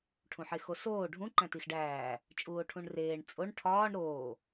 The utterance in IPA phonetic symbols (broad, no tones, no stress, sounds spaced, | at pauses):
ʈʰ ũ ħ e x o s oː ɖʱ ũ ǃ æ̃ t i x ɖ æː | t͡ʃʼ uː o̯ ʈʰ ũ ɳ r eː ɳ t͡sʼ o ɳ ʈʰ ɒː ɳ ɾ oː